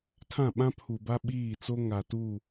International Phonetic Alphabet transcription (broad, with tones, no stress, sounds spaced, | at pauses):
tʰ ã˦˨ ɓ ã˦ pʰ u˨ b a˦ ɓ iː˦˨ t͡s o˦ ŋ a˨ t u˦˨